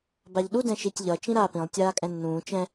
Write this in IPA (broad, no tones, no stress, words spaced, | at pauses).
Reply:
baʎɗu dɛ̃ʃitʲʎʌ t͡ʃĩɾaːpĩlˠ tʲaːkʼɛ̃nːũː t͡ʃɛ̃